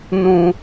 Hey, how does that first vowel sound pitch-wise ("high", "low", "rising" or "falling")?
high